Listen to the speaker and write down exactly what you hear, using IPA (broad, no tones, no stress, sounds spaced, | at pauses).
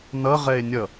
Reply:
n ʌ ʁ ɛ e̯ nʲ ʌ